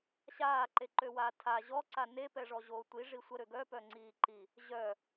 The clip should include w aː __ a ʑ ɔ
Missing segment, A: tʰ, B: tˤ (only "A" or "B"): A